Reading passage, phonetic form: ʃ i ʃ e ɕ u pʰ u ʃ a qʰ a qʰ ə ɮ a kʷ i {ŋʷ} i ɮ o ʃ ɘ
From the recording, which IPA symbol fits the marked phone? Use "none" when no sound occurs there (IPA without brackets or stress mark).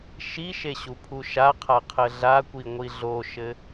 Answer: ŋʷ